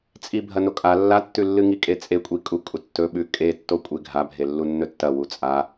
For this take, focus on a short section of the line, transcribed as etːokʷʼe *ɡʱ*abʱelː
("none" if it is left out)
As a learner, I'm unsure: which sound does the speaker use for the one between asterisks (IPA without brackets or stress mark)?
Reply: ɡʱ